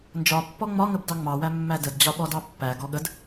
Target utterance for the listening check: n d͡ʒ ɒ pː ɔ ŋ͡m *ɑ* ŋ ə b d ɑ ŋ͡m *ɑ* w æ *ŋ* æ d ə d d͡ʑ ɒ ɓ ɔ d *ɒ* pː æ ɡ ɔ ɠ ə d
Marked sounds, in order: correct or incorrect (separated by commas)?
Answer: incorrect, correct, incorrect, incorrect